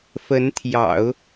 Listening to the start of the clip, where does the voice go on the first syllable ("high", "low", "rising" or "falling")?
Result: rising